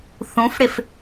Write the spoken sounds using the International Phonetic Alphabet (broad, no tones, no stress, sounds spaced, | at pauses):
θ ũ f ɽ ɪ f